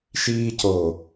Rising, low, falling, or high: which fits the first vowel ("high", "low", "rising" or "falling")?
high